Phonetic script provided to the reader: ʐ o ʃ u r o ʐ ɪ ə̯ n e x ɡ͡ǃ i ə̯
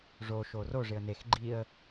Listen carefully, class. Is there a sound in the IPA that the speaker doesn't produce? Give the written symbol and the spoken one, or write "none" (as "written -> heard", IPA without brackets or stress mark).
u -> o